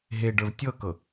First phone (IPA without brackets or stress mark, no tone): ɦ